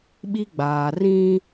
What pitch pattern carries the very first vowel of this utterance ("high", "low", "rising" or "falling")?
high